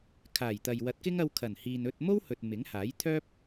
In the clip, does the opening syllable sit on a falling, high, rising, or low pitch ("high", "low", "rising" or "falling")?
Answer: low